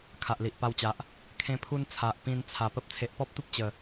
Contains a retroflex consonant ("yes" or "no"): no